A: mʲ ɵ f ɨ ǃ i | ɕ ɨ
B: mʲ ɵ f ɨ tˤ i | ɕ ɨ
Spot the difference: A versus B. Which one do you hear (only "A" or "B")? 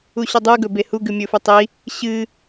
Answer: B